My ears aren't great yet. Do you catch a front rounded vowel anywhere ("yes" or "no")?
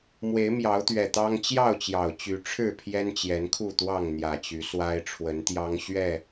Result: yes